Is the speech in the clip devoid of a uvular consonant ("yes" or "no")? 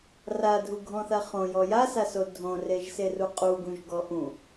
no